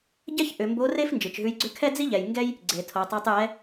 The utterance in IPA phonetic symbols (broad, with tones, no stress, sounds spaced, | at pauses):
ɟ ɛ˥ ç ʔ ʏ˩˧ m b o˧˥ r e˥ f n d͡ʒ ɯ˩ t͡ʃ ɦ ʉ˧˥ j ɡ͡ǀ ʏ˥ kʰ ɛ˥ d͡z i˥ ʎ ɛ˩ j ŋ ɡ ɛ˥ j | ɡ͡ǀ e˩ tʰ o˩˧ tˤ e˧˥ tˤ j ɛ˧˥